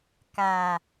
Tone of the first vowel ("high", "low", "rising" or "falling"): low